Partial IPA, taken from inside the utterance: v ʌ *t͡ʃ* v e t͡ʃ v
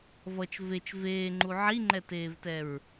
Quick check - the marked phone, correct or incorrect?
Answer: correct